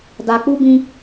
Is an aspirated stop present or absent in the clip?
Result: absent